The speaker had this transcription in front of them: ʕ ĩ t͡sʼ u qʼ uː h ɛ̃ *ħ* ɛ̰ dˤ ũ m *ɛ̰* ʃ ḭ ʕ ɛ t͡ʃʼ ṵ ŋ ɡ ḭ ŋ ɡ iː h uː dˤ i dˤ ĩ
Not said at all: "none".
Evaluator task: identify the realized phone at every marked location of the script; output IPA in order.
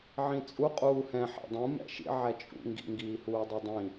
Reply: ħ, ɛ̰

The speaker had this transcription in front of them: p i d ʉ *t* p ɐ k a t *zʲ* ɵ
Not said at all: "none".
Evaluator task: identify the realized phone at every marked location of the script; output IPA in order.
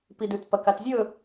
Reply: t, zʲ

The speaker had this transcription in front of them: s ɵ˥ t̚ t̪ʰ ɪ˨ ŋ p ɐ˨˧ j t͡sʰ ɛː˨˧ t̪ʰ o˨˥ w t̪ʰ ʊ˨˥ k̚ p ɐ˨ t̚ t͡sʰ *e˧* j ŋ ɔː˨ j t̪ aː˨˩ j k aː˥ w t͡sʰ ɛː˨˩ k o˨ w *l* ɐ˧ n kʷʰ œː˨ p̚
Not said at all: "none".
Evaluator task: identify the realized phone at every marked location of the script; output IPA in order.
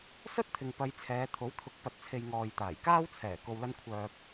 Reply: e˨, l

